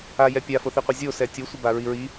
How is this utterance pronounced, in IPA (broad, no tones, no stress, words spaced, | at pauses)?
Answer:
ajɛ pʲafoθiqʷi zʲo sɛtʲosʷɛba ɹiɹi